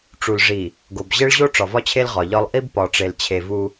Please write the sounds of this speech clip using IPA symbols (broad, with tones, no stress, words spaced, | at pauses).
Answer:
ʈ͡ʂu˨lʐi˨ | ɡo˨b ʑe˦ɭʑo˦ ʈ͡ʂɒ˨vɒ˦t͡ɕʰe˦l ʁɒ˨ʎɒ˦lˠ ʔi˦b pɒ˨ ʈ͡ʂe˨lt͡ɕʰe˨vu˦